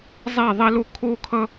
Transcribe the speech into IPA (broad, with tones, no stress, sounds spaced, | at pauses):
zˤ ɛ˥˨ ðˤ ɛ˥ l o˥ kʰ o˥ kʰ ʌ˥